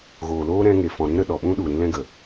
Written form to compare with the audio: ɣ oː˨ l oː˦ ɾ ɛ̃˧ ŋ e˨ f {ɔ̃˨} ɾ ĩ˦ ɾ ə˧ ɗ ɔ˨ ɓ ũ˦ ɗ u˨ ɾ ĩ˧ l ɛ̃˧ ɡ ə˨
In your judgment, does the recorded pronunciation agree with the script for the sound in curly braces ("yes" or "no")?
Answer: yes